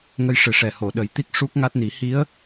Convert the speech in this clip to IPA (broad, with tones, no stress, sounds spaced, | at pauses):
ŋ ə˧ j ʂ ɨ˨˩ ʂ ɛ˨˩ h o˨˩˨ ɗ ə˨˩˦ j t̪ i˦˥ k̚ ʂ u˦˥ k̚ ŋ a˦˥ t̚ n i˨˩˦ h i˧˥ ə̯